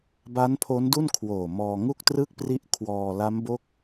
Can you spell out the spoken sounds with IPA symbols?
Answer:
b a˦˥ n pʰ o˦˥ n d u˥˩ n kʰ w oː˨˩ m ɔː˧ ŋ u˥˩ k̚ t r ɯ˥˩ k̚ p r i˦˥ ʔ kʰ w ɔː˧ l a˦˥ m b o˦˥ k̚

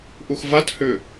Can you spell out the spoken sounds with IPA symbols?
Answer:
ʔ u x v a t h ʏ

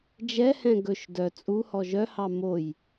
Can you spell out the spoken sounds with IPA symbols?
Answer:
d͡ʒ ɛ h ɛ̃ ɡ ɵ ʃ d œ t͡sʼ u h ɔ ʒ œ h ɑ m o j

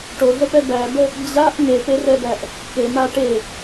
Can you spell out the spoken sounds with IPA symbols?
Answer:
ʈ o ɮ ə p ɛ b æ b ə | d͡ʑ a ʔ ŋ e p e r ɛ b æ ʔ | k e m a ʈ e

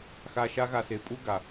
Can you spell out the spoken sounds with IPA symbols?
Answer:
x a˧ ʃ a˦ ɣ a˧ s e˨˦ pʼ u˦ ɡ a˨

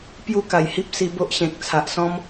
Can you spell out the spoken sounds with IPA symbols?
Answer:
p j u˦ k a˨˩ j h i˦ p̚ s i˧ b o˦ ʔ ɕ ẽ˨ k̚ t͡sʰ a˨ ʔ s ɔ̃˦ m

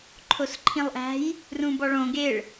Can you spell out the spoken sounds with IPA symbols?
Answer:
ǃʰ o s ǃʰ ĩ lˠ ʔ æ̤ j | r ũ b ɒ ɭ õ ɡ e ɭ

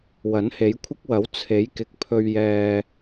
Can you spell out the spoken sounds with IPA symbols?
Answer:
w ɐ˨˥ n h e˨˥ j kʷʰ ɪ˥ k̚ w ɐ˨˥ w t͡sʰ e˨˥ j k ɪ˨ k̚ pʰ ɵ˧ ɥ j ɛː˧

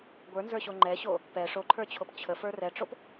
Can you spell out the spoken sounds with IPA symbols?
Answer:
ɡʷ ə˞ n z ə˞ ɕ o ŋ͡ǃ ɛ ɕ o | p ɛ ʂ o ǃʰ ə˞ t͡ɕʰ o p t͡ɕʰ ə f ə˞ r ɛ ʈ͡ʂ o p

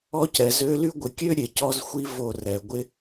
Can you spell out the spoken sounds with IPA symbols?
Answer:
ɔ˦ c ɛ˨ z ø˦ l y˦ ɡʷ ɪ˨ kʲ ø˦ ɾʲ e˨ c ɔ˦ z xʷ i˦ v o˦˨ r ɛ˨ ɡʷ ɪ˦

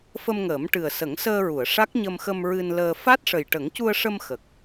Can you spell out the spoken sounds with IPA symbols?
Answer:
f ə˧ m ŋ əː˨˩˦ m ʈ ɨ˨˩ ə̯ s ə˨˩˦ ŋ s əː˧ ɹ u˨˩˨ ə̯ ʂ a˦˥ k̚ ɲ ə˧ m x ə˧ m ɹ ɨ˧ n l əː˧ f a˦˥ t̚ ʂ ə˨˩ j ʈ ə˨˩˦ ŋ c u˧ ə̯ ʂ ə˧ m x ə˨˩ k̚

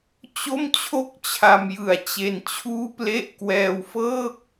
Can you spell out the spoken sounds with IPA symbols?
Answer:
t͡ɕ o˥˩ m t͡ɕʰ o˥˩ k̚ t͡ɕʰ a˧ m j ɯ˨˩ a̯ t͡ɕ e˧ n t͡ɕʰ uː˥˩ p l e˥˩ ʔ k w ɛː˧ w f ɤː˥˩ k̚

